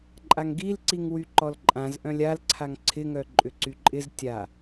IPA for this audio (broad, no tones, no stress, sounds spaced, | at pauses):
ǃʼ a ŋ ɡ i l ǀ i ŋ w y ǃ ɔ l ǃʼ ã z ʔ œ̃ lʲ a l ǀʰ a ŋ ǀʰ ɪ ŋ œ ǃʼ ʏ ǀ y ǃʼ ɪ z tʲ a